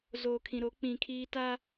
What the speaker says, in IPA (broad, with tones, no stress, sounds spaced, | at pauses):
z oː˨ kʰ ĩ˨ ɾ o˨˦ k͡p ĩ˨ kʰ iː˦ t aː˦